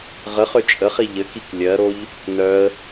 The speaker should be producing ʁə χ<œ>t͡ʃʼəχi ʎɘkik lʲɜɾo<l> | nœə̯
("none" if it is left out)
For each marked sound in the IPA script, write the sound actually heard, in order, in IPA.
ø, ʎ

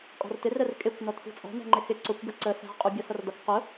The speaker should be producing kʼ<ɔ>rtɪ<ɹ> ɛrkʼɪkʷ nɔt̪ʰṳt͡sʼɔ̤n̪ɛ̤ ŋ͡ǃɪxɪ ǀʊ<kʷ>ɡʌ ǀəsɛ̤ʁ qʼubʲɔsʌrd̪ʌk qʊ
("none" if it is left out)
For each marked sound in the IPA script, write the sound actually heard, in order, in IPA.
ɔ̤, r, kʷ

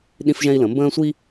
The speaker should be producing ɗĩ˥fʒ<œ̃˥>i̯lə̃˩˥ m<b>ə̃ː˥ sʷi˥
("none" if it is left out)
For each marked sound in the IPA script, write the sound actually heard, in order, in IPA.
ɛ̃˥, b

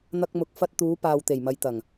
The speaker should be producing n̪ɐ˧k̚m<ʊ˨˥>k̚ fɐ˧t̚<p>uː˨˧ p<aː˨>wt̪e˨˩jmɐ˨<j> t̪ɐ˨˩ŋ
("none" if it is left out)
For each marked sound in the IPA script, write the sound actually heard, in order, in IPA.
ʊ˨˥, t̪, aː˨, j

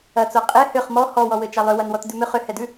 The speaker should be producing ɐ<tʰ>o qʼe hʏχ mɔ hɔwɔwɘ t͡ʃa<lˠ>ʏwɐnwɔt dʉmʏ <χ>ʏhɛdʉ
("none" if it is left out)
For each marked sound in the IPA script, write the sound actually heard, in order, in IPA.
t͡s, lˠ, χ

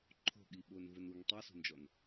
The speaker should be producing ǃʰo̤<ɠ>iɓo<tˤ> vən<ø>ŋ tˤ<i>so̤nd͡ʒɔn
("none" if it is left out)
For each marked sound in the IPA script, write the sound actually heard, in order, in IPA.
ɠ, n, u, i

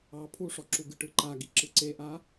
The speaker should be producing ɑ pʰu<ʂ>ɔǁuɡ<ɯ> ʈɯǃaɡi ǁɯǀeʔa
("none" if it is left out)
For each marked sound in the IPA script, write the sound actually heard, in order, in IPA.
ʂ, ɯ

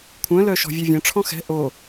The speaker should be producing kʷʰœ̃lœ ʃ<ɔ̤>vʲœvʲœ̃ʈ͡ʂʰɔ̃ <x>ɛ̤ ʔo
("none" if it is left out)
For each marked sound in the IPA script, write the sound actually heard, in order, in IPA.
ɔ̤, x

